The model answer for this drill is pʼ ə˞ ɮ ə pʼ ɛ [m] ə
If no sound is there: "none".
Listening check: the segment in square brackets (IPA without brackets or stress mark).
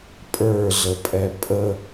pʼ